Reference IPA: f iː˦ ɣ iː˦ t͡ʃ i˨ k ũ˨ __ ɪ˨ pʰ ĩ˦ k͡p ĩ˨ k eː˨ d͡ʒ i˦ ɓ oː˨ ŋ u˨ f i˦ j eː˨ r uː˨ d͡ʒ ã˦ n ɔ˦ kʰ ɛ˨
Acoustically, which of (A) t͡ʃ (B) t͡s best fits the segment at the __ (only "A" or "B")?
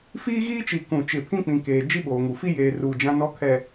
A